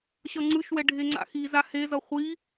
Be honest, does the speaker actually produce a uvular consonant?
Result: yes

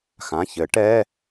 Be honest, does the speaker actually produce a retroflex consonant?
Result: yes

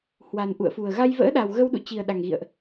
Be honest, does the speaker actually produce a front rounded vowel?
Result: no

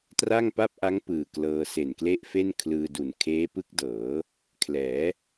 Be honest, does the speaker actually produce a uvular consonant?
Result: no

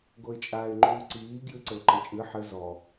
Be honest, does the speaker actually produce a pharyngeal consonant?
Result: yes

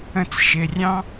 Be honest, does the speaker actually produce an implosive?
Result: no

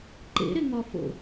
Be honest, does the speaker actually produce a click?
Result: yes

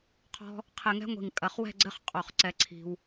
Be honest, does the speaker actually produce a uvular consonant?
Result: yes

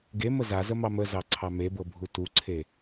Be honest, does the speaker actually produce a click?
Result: yes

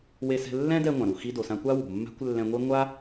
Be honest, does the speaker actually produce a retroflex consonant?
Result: no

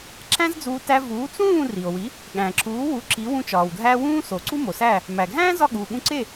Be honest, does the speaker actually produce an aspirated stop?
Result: no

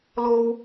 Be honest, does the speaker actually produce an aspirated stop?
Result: no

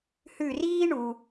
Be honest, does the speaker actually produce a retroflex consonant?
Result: yes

